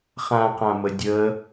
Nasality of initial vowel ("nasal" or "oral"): nasal